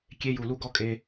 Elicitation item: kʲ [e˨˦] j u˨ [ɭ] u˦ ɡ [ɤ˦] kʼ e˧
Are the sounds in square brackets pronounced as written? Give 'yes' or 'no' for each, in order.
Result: no, no, no

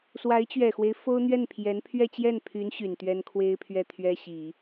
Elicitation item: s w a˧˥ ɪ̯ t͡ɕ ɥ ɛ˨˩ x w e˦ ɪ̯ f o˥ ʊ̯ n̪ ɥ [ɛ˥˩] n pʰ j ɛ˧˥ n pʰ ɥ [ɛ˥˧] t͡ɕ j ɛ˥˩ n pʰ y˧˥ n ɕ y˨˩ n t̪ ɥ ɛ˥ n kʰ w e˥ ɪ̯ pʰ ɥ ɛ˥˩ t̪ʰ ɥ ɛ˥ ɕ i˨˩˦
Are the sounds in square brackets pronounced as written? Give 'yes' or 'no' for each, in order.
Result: yes, yes

